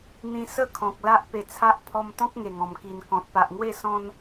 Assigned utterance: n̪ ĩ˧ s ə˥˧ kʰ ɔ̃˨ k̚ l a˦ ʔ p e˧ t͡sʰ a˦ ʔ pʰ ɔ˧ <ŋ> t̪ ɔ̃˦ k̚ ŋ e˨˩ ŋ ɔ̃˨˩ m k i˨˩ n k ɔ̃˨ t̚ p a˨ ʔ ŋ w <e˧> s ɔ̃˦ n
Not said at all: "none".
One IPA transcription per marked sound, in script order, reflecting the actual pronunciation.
m, e˥˧

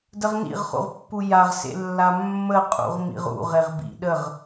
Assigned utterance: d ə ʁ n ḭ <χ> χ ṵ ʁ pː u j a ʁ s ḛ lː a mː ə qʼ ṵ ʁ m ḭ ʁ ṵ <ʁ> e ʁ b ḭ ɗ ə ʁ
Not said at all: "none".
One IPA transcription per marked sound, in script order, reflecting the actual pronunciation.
ʁ, ʁ

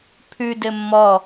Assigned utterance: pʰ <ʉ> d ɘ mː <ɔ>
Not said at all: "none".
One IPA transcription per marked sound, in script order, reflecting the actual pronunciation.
ʉ, ɔ

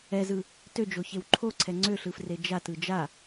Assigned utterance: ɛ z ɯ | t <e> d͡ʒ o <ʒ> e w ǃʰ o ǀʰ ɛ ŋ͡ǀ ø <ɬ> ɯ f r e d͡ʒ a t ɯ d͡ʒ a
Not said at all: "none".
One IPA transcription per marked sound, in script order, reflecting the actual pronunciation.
ø, ç, ɬ

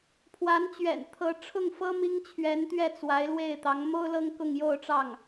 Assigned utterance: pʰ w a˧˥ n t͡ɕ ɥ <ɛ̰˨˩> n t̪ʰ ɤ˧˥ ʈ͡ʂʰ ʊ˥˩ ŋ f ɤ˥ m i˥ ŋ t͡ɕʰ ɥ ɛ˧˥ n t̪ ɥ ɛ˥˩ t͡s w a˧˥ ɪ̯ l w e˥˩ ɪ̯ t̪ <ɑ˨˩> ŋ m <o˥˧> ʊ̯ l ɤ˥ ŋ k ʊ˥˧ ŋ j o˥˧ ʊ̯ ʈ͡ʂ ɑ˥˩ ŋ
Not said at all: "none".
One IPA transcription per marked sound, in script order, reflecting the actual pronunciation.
ɛ̰˨˩, ɑ˧˥, o˥

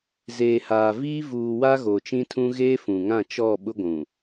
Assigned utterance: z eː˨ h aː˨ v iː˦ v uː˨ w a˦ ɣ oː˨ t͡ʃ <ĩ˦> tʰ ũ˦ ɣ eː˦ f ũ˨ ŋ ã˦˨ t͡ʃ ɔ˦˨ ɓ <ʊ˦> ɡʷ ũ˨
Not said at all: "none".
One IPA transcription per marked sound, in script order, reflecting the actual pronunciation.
ĩ˦, ʊ˦

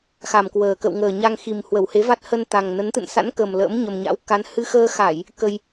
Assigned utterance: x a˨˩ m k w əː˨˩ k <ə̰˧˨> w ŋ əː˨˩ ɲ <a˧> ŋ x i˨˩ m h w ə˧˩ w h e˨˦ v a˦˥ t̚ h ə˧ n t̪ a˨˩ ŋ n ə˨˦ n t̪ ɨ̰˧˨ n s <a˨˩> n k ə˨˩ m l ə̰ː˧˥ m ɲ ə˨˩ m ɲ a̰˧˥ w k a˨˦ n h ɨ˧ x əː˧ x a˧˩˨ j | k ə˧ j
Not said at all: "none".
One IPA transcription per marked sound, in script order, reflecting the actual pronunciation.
ə̰˧˨, a˧, a̰˧˥

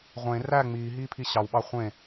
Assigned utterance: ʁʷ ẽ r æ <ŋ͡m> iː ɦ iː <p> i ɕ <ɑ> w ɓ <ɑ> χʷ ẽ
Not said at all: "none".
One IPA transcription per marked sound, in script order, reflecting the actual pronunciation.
ŋ͡m, pʰ, ɑ, ɑ

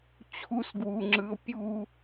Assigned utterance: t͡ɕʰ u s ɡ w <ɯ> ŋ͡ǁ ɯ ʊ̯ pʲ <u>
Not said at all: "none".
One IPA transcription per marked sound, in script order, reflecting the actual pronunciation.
u, u

